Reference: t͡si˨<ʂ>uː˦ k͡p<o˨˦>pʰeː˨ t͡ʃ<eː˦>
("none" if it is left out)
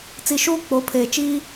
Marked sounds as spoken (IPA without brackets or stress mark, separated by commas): ʃ, o˨˦, iː˦